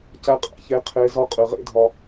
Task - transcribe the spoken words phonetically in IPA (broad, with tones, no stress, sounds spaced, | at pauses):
c æ˧ qʼ æ̰˨ ç e˧ qʰ e˧ z ɒ˦ qʼ ɨ˨ ʁ ḛ˦ dʱ ɒ˧